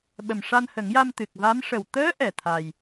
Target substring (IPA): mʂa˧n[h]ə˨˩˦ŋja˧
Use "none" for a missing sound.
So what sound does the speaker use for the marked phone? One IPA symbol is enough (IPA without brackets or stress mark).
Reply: h